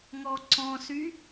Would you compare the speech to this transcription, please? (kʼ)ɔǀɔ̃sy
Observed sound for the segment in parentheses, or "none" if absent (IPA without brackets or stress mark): ŋ